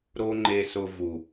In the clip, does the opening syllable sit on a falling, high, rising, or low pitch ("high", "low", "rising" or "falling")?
high